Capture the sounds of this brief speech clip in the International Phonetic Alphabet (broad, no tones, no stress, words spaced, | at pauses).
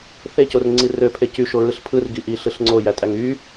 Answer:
θecorŋ͡ǀi røpʰe cyʃoɹɯɬ pʰɯrɡiʔiɬɯɬ ŋ͡ǀojætʼæŋ y